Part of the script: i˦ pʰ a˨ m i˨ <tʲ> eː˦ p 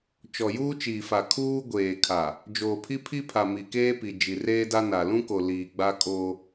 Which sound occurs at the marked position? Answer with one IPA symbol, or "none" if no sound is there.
k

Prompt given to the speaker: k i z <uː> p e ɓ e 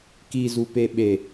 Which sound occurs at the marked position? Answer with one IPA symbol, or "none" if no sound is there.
u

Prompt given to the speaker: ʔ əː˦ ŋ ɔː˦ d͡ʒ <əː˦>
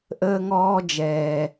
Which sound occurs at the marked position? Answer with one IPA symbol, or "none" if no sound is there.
ɛː˦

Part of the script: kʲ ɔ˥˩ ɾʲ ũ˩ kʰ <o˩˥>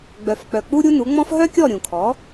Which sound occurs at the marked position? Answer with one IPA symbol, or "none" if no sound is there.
ɔ˩˥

